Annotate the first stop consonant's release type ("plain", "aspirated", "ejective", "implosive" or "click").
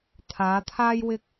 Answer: aspirated